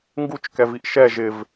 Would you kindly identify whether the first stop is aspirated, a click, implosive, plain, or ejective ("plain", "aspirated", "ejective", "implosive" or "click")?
plain